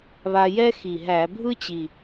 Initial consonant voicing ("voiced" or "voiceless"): voiced